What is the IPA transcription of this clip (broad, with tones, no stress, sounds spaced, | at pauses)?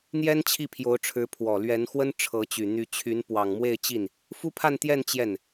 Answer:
n̪ j ɛ˥ n t͡ɕʰ i˥˩ pʰ j o˧˥ ʊ̯ ʈ͡ʂʰ ɻ̩˧˥ pʰ w ɔ˨˩ l ɥ ɛ˧˥ n x w ə˥ n ʈ͡ʂʰ ɤ˧˥ t͡ɕ y˨˩ n̪ y˧˥ t͡ɕʰ y˧˥ n p w ɑ˨˩ ŋ m w e˥˧ ɪ̯ t͡ɕ i˥˩ n | f u˥ pʰ a˥˧ n t̪ j ɛ˥˧ n t͡ɕ j ɛ˥˩ n